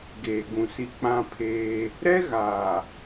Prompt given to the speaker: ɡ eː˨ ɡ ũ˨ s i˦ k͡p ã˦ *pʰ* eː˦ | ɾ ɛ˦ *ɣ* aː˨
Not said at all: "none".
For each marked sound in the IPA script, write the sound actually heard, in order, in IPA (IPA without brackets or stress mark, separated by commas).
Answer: pʰ, ɣ